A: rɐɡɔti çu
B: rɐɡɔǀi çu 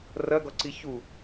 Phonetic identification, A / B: B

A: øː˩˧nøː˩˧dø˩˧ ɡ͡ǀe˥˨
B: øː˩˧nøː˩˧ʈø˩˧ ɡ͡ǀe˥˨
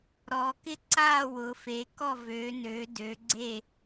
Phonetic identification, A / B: A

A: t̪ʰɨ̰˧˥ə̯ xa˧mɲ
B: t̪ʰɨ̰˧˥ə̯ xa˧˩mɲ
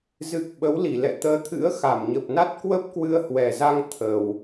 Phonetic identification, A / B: B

